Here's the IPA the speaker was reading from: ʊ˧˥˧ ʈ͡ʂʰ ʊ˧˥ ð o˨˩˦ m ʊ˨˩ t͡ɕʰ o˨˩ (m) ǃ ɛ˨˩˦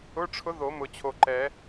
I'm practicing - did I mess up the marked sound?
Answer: yes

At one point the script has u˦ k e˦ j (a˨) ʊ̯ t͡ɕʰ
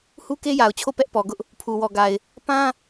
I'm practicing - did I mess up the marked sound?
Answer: no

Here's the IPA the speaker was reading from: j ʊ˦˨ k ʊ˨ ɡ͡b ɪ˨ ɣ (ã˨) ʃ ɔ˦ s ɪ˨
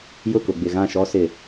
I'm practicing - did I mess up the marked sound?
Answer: yes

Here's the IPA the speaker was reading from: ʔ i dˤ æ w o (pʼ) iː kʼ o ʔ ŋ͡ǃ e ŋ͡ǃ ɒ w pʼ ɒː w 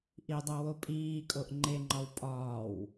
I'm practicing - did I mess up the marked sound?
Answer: no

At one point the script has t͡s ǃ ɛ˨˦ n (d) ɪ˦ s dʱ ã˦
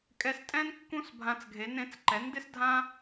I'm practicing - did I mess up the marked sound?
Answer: no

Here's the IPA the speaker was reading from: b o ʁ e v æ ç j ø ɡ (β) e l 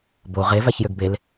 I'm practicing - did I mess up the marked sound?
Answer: yes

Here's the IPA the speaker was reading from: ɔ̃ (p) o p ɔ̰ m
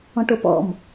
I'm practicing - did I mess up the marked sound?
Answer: yes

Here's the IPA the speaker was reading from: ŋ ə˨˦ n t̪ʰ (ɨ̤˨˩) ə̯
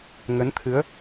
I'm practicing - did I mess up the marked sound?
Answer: yes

